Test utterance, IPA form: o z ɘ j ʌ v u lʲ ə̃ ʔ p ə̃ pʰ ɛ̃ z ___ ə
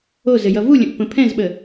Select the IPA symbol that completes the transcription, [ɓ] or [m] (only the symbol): ɓ